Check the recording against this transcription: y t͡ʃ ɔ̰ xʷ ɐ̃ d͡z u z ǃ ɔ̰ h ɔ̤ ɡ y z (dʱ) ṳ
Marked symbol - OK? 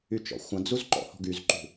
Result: no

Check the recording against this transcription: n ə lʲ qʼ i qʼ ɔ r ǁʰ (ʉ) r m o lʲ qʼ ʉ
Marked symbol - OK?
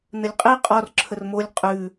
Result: no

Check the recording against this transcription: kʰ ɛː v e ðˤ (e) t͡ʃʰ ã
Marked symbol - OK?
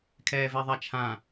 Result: no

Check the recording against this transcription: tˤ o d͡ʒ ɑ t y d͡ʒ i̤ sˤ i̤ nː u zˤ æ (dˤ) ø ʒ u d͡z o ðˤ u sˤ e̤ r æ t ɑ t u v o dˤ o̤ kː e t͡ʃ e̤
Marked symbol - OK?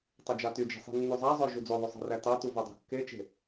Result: no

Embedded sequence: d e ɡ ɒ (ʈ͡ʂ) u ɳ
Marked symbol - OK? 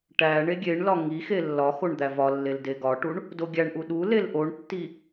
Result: no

